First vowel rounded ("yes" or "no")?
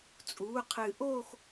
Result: yes